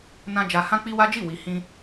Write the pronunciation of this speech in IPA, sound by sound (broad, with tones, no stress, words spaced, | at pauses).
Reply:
nã˧ d͡ʒa˧ hã˦ k͡pi˦wa˦d͡ʒi˦˨ wi˨hĩ˧